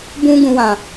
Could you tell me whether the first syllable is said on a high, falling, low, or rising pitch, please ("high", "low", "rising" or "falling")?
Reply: high